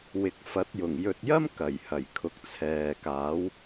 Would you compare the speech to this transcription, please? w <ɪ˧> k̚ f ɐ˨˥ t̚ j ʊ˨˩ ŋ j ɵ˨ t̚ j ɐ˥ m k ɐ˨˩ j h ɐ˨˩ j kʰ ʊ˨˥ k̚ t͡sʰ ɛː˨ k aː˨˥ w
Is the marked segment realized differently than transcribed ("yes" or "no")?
yes